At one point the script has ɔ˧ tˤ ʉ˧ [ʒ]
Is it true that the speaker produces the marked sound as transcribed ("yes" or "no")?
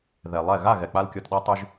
yes